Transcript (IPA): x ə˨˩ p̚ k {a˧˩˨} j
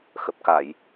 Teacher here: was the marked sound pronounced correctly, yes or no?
yes